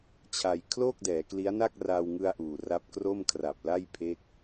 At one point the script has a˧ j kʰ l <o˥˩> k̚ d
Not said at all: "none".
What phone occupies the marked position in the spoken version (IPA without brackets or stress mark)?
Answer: o˥˩